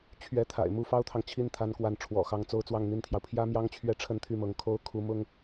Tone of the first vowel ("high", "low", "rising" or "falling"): rising